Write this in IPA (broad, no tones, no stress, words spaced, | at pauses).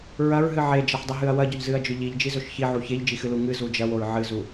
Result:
ɹɐɹɦɨ ʕed͡ʒɐħdˤɨɦɨɐ̯ wɐɟɵʎzɨɐ̯d͡ʒɵ ʎiʎd͡ʒizɵʃ çiʕu çeʎd͡ʒixɨlu ŋɨzu d͡ʒɐwoɹ ʕɨzu